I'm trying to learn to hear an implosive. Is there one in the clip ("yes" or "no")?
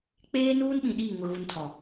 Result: yes